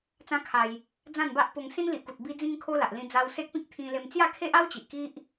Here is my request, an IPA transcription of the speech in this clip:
t͡s ã˦ kʰ a˧ j | d͡z ã˥˧ n b a˦ ʔ p o˧ ŋ s ĩ˦ n l i˨ ʔ k u˨ t̚ b i˦ d͡z ĩ˦ ŋ kʰ o˦ l a˨ ʔ l ĩ˧ d͡z a˧ w s e˦ k̚ p ĩ˦ k̚ t̪ʰ ĩ˧ l e˧ m t͡s j a˥˧ kʰ e˦ ʔ a˦ w t͡ɕ i˨ ʔ k i˦ ʔ

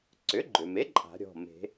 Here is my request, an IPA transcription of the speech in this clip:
ǀ ʏ˩˥ ɡ͡ǃ ʏ˩ m e˩˥ ǃʼ a̤˨˩˦ ɾʲ ɔ̤˩˧˩ m e̤˨˩˦

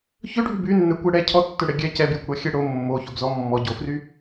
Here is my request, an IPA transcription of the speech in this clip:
ç ø ɖʱ y b y nː ɛ kʷ ɛ ɽ ɛ cʰ ɔ tː ø ɽ ɛ ɡʲ ɛ c ɛ b j y kʷ ɽ ɔ xʲ ɛ ɽ o mː o ç o b z ɔ mː ɔ ɟ o f r y

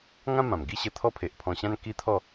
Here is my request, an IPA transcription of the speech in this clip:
ŋ ã˦ m ã˨˩ m ɡ i˥˧ ɕ ə˧ t̪ʰ ɔ˦ pʰ e˨ ʔ pʰ ɔ̃˧ ɕ ã˦ n k i˦ t̪ʰ ɔ˥˧

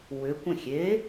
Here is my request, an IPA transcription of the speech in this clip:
w ʏ kʷ ə̃ xʲ e

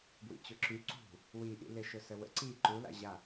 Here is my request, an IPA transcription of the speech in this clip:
b w ḭ t͡ɕ ʊ ǁ y ǀ ṳ | w i ʔ ḭ l ɪ ʃ ʊ s ə w ə̰ ǀ i ǃ u l a̰ ʑ a

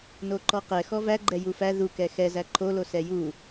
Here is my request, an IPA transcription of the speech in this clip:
n o ǃ ɔ q ɛ x ɔ v æ ɡ͡ǃ ɛ j u f æ ð u k ɛ x ɛ z æ ǃʰ o l o s ɛ j u

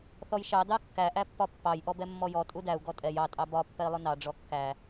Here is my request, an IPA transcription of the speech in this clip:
θ ɔ j ʃ ɑ d ɑ kː æ ʔ æ pː ɒ pː ɑ j ʔ ɔ b ɛ mː ɔ j ɔ tʼ u d æ u̯ ɡ ɔ tʼ ɛ j ɑ tʼ ɑ b ɒ pː ɛ i̯ lˠ ʊ n ɑ ɖ͡ʐ ɔ kː æ

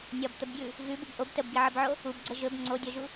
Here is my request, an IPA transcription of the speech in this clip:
nʲ ɒ b t̪ ə b ɡ j ʉ | ɣ ʉ b u b ʔ o b t ə b ɡ i ʕ ə b ʕ o | u b ɡ͡ǀ ə ʒ ɵ b ŋ͡ǀ o dʲ ɒ ʒ u

